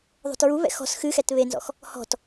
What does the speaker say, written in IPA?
ðˤo̤tɹuβɛ̰ xɔ̤s xɨxɛt βenzɔ̰x | hɔ̤t

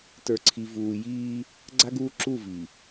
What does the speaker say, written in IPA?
tə˞˨ǀʰi˨ vuː˨ jiː˦ | ɡ͡ǀa˦ɡuː˦ ǁu˦˨vi˨

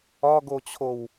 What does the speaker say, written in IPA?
ɒɡot͡ɕʰow

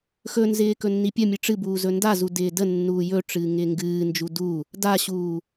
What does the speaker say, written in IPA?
xɵnzɪː kɵnːipʲəmʲɨ ʈ͡ʂɨbuː zɵndazu dɪːdənːuː jɵʈ͡ʂɨː ŋɪːŋɡɨːnd͡ʒu du | daɕuː

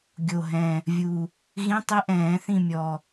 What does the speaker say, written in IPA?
ɡʲo˨˩ɦɛ̃˨˩ | vʲu˨˩ | ɣĩ˧˥˧ tˤi˦˥ʔɛ̃ː˨˩˦θĩ˦˨mʲɔ˨˩

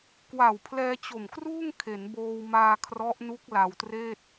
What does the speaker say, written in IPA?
kwa˨˩wpʰlɛː˧t͡ɕo˨˩mkruː˥˩ŋ kʰe˩˦nboː˧wmaː˧ kʰrɔ˦˥ʔnu˦˥k̚ la˧wtreː˥˩t̚

